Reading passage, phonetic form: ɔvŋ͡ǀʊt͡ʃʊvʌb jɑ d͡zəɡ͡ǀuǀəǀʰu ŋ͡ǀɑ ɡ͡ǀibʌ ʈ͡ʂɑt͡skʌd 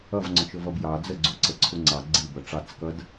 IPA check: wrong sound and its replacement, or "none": ɔ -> ʌ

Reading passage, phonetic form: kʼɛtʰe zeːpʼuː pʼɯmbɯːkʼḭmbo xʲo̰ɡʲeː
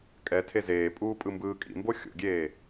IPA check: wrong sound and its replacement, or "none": none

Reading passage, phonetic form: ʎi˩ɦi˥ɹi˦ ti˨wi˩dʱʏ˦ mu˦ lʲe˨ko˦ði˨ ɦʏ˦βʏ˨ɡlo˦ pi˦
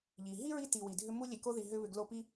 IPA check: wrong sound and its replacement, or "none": none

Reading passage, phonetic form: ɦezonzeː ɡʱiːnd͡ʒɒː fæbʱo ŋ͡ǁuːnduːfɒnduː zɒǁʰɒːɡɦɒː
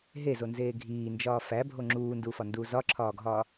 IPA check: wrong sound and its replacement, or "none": none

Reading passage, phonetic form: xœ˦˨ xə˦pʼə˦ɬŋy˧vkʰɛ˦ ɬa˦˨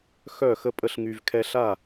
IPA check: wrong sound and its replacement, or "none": none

